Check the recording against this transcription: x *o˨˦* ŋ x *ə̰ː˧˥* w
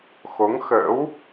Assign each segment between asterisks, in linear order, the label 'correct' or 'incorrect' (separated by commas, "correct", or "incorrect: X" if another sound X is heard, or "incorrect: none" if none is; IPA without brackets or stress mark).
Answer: correct, correct